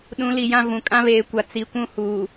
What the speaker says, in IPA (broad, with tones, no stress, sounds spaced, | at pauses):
ɗ ũ˨˦ l i˨ j ã˦ v ũ˨ kʼ ã˦ β eː˨ kʷ a˨ t͡s i˨ kʷ ũ˦˨ h uː˨